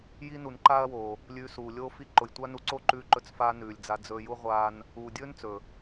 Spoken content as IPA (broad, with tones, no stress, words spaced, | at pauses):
ji˦ nu˨nǃaː˦ɐ̯woː˨ | lʲʉː˧suː˨ lʲoː˧fi˧ ǃʊ˨jtʷa˦nu˧ǀo˦ ǃʉː˧ǃɵ˧t͡sfaː˧ nʉː˨lʲd͡za˧ d͡zɵː˧ju˦ ʁʷaː˧n | uː˨dʲɵː˦n t͡sɵ˨